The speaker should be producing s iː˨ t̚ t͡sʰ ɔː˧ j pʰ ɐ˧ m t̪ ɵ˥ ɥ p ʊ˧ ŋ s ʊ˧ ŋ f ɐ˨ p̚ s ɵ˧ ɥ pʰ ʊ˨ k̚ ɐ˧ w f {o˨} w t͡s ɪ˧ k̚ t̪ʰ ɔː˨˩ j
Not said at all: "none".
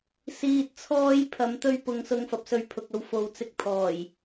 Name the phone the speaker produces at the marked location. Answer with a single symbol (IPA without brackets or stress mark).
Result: o˨